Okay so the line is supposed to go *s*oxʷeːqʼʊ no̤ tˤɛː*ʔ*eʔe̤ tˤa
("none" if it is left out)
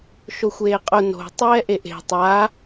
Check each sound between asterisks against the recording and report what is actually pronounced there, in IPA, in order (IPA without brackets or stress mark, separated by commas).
ʃ, ʔ